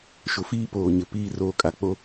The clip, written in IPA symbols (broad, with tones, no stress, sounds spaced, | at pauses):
ʃ ʊ˨ f iː˦ p oː˨ ɲ ɪ˨ p iː˦ r oː˦ kʼ a˨ k͡p o˦